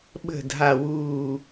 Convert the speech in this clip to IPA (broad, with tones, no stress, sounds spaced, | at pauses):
ɓ ə̤˨˩ dʱ a˨˩ w uː˨˩